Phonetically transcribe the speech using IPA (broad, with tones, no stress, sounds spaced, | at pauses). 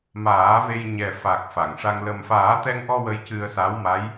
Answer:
m aː˨˩˦ v e˧ j ɲ ɛ˨˩ f a˨˩ k̚ f a˨˩˨ ŋ ʂ a˧ ŋ l ə˨˩ m f aː˨˩˦ t̪ ɛ˧ ŋ ʔ ɔ˧ w ə˧ j c ɨ˧ ə̯ s a˧˥ w m a˧˥ j